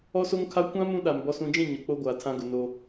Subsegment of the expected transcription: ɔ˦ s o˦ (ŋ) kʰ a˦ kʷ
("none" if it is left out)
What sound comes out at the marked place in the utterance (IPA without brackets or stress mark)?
ŋ